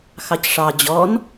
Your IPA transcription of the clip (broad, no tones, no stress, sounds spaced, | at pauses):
x ɑ c ʂ ɑ d͡ʑ ɔ n